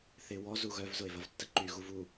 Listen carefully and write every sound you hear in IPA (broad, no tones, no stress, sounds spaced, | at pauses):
θ ɪ w ɔ z u ɣ œ v z ʊ e̯ v ɐ v tː ə ǃ y ɣ u v u